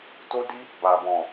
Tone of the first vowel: high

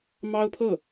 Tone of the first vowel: high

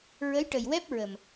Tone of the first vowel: rising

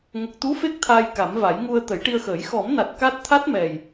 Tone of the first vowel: low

